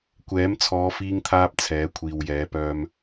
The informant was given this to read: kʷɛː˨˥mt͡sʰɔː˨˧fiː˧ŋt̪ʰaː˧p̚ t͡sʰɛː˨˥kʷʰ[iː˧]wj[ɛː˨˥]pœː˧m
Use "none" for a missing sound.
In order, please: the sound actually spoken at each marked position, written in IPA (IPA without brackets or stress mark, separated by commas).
iː˨, ɛː˨˥